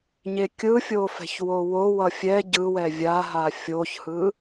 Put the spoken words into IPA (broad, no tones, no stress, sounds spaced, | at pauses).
ɲ e kʲ ɯ fʲ o f ɛ̤ ç w o w o w ʌ fʲ ɛ ɟ ɯ w ɛ vʲ a ɦ a fʲ o ç h ɯ